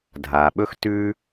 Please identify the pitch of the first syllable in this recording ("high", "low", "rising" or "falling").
low